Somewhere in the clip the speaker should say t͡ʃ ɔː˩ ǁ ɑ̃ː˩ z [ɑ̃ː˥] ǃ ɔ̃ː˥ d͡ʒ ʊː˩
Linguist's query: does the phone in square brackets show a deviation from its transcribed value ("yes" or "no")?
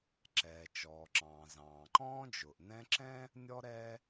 yes